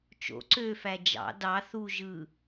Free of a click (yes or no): no